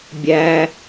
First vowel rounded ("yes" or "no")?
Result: no